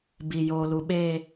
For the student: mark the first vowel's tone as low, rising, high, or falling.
low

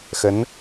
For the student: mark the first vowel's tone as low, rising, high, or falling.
rising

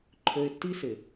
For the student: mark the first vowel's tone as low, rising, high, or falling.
low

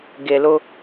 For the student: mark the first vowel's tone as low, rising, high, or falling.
low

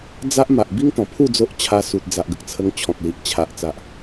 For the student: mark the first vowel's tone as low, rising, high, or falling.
high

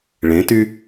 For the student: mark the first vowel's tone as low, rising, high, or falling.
rising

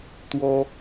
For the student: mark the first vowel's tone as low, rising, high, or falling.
high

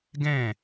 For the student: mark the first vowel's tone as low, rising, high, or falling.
falling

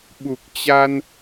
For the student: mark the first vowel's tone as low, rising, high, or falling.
low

